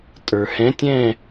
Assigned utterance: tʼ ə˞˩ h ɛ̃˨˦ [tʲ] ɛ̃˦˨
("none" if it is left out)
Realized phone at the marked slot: tʲ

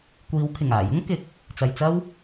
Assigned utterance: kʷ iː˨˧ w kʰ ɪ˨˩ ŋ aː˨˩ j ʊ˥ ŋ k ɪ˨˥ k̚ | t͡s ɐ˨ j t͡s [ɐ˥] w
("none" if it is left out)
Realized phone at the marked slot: ɐ˥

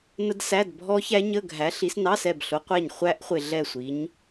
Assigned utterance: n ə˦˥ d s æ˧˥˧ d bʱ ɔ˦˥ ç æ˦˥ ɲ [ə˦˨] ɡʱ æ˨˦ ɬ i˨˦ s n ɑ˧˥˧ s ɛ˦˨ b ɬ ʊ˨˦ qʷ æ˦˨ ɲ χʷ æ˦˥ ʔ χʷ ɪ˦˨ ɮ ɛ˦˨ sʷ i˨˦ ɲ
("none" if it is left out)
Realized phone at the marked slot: ə˧˥˧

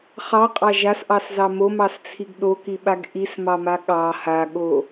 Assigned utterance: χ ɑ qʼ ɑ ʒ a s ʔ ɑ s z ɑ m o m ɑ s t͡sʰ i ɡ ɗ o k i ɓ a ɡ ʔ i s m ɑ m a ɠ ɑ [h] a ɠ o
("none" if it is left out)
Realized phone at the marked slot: h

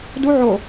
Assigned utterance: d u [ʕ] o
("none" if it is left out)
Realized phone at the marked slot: ʕ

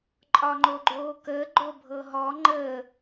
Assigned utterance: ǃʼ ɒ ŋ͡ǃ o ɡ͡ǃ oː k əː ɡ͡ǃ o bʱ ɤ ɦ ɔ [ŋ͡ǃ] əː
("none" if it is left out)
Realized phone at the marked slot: ŋ͡ǃ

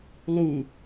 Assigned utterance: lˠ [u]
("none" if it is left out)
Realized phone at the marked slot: u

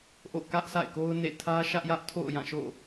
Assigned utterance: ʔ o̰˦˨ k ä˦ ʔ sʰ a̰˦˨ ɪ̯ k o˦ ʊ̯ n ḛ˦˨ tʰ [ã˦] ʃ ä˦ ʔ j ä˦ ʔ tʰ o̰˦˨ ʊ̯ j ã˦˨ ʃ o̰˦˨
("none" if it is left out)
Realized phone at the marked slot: ä˦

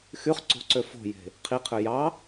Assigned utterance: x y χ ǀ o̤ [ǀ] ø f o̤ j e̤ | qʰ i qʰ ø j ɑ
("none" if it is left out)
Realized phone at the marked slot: ǀ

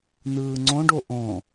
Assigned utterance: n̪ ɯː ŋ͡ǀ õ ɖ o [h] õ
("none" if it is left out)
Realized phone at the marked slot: ʔ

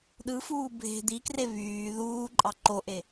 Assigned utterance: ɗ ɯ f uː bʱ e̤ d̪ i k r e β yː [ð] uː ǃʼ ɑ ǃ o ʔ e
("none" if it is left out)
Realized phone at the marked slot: ð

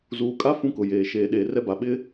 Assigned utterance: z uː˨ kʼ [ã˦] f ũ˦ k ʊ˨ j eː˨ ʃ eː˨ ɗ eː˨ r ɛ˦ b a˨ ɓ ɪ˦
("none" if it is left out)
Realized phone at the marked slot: a˦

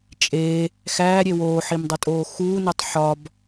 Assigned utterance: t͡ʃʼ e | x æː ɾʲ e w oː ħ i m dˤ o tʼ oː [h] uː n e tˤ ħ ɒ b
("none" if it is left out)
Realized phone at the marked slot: x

